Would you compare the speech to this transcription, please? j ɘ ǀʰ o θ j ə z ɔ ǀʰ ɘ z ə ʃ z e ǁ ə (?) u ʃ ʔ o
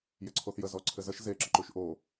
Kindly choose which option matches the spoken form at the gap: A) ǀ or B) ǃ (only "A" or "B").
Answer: B